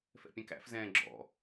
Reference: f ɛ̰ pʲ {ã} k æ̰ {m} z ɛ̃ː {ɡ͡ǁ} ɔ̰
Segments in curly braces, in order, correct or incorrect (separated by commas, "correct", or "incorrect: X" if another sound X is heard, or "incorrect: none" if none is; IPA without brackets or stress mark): incorrect: æ̃, incorrect: f, correct